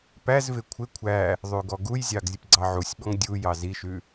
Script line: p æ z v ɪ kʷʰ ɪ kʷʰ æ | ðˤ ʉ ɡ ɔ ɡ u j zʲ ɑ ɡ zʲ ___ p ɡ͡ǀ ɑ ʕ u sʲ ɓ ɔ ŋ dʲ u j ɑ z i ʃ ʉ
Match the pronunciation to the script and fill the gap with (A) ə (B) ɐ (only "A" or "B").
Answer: A